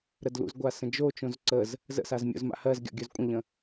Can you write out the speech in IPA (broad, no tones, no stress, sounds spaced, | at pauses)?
ɾ ə d l ṵ z ɡʷ a s ə̃ d͡ʒ o t͡ʃ õ z ǀ ə z | z ə̰ s a z mʲ o̰ z m a̰ h ɜ z ɡʲ ɔ̰ ɡʲ ɵ z kʷʼ ə̃ ʎ ə̃